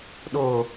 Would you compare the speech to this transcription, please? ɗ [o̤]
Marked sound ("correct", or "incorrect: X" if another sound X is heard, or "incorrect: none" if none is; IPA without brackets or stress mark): incorrect: o